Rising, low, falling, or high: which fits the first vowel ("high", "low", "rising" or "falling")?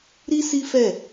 high